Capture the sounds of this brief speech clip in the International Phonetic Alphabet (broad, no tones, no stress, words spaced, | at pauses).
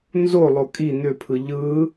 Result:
nzolˠo kʼi n̪ʏpʰɯ ʎɯ